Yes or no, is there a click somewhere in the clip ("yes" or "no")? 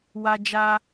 no